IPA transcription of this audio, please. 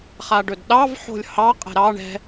χ a ɖ ɵ d ɗ ɑ v ħ o̤ lʲ h ɑ qʼ ɛ̤ ɾ ɑ ɳ ɛ̤

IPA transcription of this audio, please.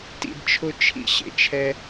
t ḭ˧ d t͡ʃʰ ʊ˦ t͡ʃʰ ḭ˦ ɕ ḛ˨ t͡ʃʰ ɛ˧

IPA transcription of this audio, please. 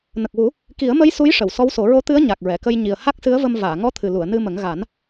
n ə˨˩ k̚ w u˨˩˦ | k i˨˩˦ ə̯ m ə˧˥ j s u˧˥ j ʂ ə˨˩˨ w s ɔ˧˥ w s o˨˩˦ ɹ o˧˥ t̪ ɨ˧˥ ə̯ ɲ a˨˩ k̚ ɹ ɛ˨˩˨ k ə˧ j ɲ i˨˩ ə̯ h a˦˥ k̚ s ɨ˧˥ ə̯ v ə˧ m v aː˨˩˨ ŋ ɔ˧˥ t̪ʰ ɨ˨˩ l u˨˩˨ ə̯ n ɨ˧ m ə˨˩˦ ŋ ɣ a˨˩˦ n

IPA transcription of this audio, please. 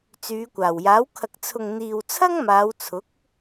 t͡s yː˨˧ kʷ aː˨˩ w j aː˨˥ w kʰ ɐ˨ k̚ t͡sʰ ʊ˨ ŋ n̪ iː˨ w t͡sʰ ɐ˥ ŋ m aː˨˧ w t͡sʰ ʊ˨˥ k̚

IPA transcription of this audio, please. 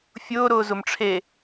fʲ ʊː ɾ ʊː z ʊ m ʈ͡ʂʰ e

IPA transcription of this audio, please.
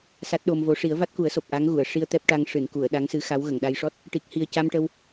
s a˦˥ t̚ ɗ o˧ m v o˧˥ ʂ i˨˩˦ ə̯ v a˦˥ t̚ k u˨˩˦ ə̯ s o˨˩ p̚ ʔ a˧˥ ŋ ɣ u˨˩˨ ə̯ ʂ i˧ ə̯ t̪ ɛ˦˥ p̚ ʈ a˧ ŋ ʂ ɨ˨˩˨ n k u˨˩˨ ə̯ ɗ a˧˥ ŋ s ɨ˧˥ x a˧˥ w ɣ ə˨˩˨ ŋ ɗ a˧ j ʂ ɔ˦˥ t̚ | ʈ i˨˩ k̚ h i˨˩ ə̯ c a˧ m ʈ ə˧ w

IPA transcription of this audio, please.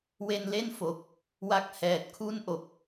w e˧ n l e˥˩ n f o˨˩ k̚ | w a˦˥ k̚ h ɛː˨˩ t̚ kʰ u˥˩ n ʔ o˨˩ k̚

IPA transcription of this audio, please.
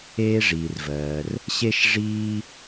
eː˥ ʐ iː˩ r v ɜː˩ r | ɕ e˥ ʃ ʐ iː˥

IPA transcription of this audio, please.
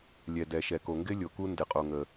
lʲ ɛ˨ d ɛ˨ ʃ ɛ˨ k o˨ ŋ ɡ ɪ˦˥ lʲ o˨ k u˦˥ n d ɪ˨ qʼ o˨ ŋ ə˨

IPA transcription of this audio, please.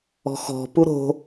ɔ̤ x ɔ̤ p u ɾ o̤

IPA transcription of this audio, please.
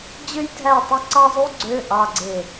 d͡ʑ ø˥ j dʱ æ˥˩ tˤ ø˥ ǀ ɑ˥ zˤ u˥ ɡ͡ǀ ø˧˥˧ ʔ ɑ˧˥˧ ɡ͡ǀ e˥˩

